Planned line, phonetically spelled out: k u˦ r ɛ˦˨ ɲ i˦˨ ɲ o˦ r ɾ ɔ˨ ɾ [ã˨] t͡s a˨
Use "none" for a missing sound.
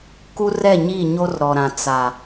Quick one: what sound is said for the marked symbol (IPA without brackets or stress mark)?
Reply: ã˨